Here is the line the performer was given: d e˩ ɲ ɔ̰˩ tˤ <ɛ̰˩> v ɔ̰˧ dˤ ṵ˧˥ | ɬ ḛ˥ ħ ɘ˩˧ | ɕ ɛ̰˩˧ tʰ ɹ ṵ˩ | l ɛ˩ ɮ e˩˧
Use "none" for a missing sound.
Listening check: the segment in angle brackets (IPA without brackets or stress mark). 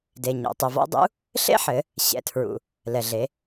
ɛ˩